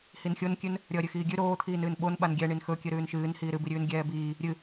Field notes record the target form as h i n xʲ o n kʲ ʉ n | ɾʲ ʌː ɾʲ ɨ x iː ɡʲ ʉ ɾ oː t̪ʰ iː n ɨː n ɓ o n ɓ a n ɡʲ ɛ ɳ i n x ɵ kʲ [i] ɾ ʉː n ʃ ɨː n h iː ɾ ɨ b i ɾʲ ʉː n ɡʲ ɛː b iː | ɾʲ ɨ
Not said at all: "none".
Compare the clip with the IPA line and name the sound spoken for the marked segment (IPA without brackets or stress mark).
ɨ